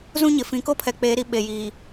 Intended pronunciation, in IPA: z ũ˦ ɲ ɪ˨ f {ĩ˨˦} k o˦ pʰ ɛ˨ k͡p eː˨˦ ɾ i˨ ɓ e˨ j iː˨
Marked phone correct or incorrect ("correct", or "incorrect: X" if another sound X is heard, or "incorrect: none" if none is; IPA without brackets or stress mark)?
correct